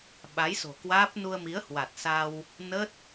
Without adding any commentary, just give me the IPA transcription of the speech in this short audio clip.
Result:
ɓa˨˦jso̤˨˩kwaː˦˥p̚nu˧ə̯ mi˨˦ə̯hwa˨˩t̚ sa˧w | nə˦˥t̚

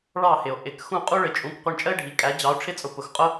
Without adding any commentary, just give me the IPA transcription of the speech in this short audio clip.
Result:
ɭɑ˥˩hɪ˩o̯ ʔɪ˩˥k xũ˥˩qʼu˥ɭɪ˩˥t͡ʃʼũ˩˥k qʷʌ˧ɳt͡ʃʼə˥e̯ɖʱi˩ kʼæ˩˥ d͡ʑɑ˩˥o̯ʈ͡ʂʰɪ˥t͡sʼʊ˩˥ pʊ˩xqʼʊ˥

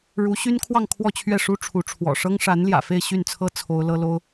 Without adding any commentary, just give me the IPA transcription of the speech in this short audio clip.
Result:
ɻu˧˥ɕy˥nkʰwɑ˥˧ŋ kʰwɔ˥˧t͡ɕʰɥɛ˥˩ʂu˥ ʈ͡ʂʰu˧˥ʈ͡ʂʰwɔ̰˨˩ ʂɤ˥ŋʂa˧˥nljä̰˨˩ fe˥˧ɪ̯ɕy˥˩nt͡sʰɤ˥ t͡sʰo˥ʊ̯lɤ˥lo˥ʊ̯

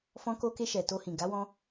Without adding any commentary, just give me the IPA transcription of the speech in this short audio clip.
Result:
fɔ̃˧ko˧ke˧ ʃɛ˨to˧hĩ˨ ɡa˨˦wɔ̃˧

